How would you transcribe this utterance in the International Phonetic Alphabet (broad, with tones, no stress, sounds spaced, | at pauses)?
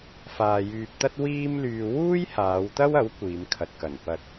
f aː˧ j yː˧ p̚ t̪ ɐ˥ t̚ w iː˥ m l yː˧ w uː˥ j h aː˨˧ w t̪ ɐ˥ w ɐ˨˥ w kʷ iː˨˧ m kʰ ɐ˨ t̚ k ɐ˨˩ n p ɐ˧ t̚